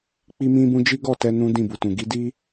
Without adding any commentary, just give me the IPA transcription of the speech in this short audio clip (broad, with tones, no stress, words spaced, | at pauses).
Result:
k͡pi˦mĩ˦bũ˦ d͡ʒi˦ɡɔ˦˨tɛ˧ nũ˦dĩ˦˨bu˨tũ˨ ɡi˨˦ di˦